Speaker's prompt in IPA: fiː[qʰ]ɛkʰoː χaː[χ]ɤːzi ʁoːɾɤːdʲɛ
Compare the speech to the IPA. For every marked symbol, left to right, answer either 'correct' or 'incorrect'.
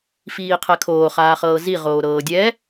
correct, correct

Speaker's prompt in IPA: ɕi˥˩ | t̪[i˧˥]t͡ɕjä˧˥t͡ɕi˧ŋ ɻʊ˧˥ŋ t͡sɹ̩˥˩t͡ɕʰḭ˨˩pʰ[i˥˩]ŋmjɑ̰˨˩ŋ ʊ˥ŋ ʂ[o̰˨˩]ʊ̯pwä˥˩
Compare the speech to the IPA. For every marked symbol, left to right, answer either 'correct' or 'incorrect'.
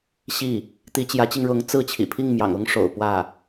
correct, correct, correct

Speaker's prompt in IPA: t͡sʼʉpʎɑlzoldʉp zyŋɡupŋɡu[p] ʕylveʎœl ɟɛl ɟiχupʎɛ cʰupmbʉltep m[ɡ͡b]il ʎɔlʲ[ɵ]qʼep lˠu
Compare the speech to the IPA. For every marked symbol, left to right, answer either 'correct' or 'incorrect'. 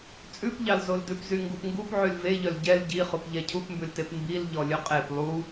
correct, incorrect: b, correct

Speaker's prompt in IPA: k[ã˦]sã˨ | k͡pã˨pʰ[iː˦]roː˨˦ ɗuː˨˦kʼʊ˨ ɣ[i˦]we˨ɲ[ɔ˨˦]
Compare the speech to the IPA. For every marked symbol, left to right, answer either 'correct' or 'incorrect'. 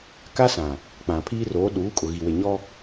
incorrect: a˦, correct, incorrect: i˨, incorrect: ɔ˦

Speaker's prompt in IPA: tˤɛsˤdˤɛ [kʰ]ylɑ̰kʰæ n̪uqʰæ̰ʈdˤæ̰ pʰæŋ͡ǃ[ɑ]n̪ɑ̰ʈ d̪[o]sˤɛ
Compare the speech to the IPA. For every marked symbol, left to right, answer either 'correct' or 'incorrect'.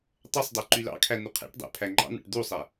incorrect: ǃ, incorrect: ɑ̰, incorrect: u

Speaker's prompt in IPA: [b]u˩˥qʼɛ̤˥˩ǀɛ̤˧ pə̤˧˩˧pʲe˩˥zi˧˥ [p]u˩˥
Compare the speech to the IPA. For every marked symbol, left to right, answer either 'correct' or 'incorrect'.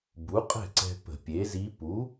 correct, correct

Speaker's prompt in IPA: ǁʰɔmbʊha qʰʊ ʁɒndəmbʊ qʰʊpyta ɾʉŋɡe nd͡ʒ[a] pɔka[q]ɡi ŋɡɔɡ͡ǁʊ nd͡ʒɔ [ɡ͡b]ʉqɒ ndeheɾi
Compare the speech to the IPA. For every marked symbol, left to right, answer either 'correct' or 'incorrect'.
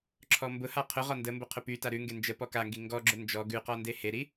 incorrect: ə, incorrect: ŋ, incorrect: ɡ

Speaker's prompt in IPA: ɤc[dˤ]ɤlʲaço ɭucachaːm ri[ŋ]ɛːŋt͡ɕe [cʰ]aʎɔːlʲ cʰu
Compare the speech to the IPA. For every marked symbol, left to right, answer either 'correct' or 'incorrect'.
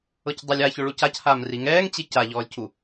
correct, correct, incorrect: c

